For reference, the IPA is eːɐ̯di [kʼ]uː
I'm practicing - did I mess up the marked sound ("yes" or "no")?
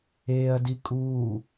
no